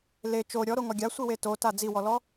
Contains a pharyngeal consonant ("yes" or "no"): no